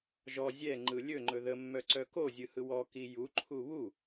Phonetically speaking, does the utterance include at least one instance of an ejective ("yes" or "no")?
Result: no